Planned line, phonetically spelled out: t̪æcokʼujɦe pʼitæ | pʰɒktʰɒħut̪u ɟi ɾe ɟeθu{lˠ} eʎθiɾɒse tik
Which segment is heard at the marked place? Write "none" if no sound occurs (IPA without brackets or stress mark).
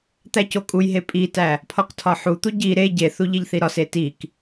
ʎ